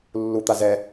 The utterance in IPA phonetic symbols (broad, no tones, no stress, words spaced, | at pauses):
lːut̪a zɛ